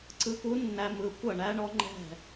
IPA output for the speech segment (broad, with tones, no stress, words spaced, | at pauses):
ǀɯ˨ku˨˦nːæ˨ mɯ˨ kʷɐ˥˩ɳæ˦˥ɳɔ˦˥ ŋ͡ǃɛ̤˥˩